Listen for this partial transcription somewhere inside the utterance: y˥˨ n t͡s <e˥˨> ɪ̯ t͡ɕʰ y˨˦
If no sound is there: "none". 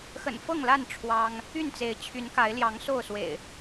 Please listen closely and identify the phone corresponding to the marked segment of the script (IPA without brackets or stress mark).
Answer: e˨˦